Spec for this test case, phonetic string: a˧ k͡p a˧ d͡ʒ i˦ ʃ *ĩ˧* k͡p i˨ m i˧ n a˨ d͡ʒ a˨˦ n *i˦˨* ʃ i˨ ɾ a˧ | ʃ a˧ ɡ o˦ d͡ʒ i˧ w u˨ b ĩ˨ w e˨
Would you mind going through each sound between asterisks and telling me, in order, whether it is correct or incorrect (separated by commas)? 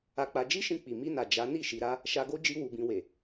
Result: correct, correct